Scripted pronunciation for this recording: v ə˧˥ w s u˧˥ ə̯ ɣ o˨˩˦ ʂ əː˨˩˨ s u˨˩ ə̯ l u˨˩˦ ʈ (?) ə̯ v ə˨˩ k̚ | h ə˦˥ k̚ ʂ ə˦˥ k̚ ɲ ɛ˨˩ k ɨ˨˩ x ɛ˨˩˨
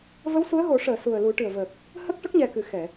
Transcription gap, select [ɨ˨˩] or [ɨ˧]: ɨ˨˩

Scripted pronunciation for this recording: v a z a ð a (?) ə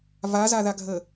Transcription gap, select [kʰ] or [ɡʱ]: ɡʱ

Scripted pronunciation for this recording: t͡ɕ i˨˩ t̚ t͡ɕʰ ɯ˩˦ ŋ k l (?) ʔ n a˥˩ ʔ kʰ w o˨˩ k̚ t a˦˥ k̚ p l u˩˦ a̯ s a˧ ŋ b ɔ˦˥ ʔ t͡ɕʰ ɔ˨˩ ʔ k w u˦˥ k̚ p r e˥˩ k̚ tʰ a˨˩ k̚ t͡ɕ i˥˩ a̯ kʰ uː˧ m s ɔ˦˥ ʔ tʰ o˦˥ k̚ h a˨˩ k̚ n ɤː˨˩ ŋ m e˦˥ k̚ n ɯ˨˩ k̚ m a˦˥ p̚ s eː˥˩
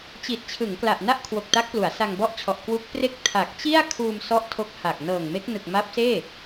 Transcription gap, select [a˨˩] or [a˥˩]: a˨˩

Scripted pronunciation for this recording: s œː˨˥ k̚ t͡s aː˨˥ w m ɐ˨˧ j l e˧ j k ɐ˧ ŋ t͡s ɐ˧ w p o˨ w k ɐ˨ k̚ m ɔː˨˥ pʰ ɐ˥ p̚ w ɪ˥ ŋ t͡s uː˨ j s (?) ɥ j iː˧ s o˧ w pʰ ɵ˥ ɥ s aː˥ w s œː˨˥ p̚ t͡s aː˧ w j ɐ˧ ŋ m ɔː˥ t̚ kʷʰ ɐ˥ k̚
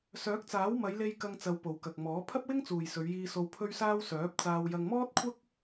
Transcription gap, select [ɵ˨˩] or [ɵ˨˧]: ɵ˨˧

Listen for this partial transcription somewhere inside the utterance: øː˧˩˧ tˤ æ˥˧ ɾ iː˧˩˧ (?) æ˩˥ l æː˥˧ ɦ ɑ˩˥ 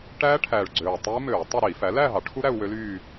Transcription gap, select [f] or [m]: f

